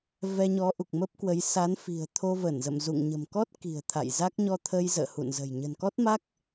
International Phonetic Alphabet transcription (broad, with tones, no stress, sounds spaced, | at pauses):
v ɛ˧ ɲ ɔ˨˦ ʔ u˨˩ k̚ m ə˦˥ p̚ k w ə˨˦ j s a˨˦ n f i̤˨˩ ə̯ t̪ʰ o˧ v ə˧˩ n z ə̰˧˨ m z ṵ˧˨ ŋ ɲ ə̤˨˩ m k ɔ˦˥ t̚ k i̤˨˩ ə̯ t̪ʰ a̰˧˨ j z a˦˥ k̚ ɲ ɔ˧ t̪ʰ ə˧ j z ə̰ː˧˨ h ṵ˧˨ n z ə̤˨˩ j ɲ ə̤˨˩ n k ɔ˦˥ t̚ m a˦˥ k̚